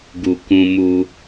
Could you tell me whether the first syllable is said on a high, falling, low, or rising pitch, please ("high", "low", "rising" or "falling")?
low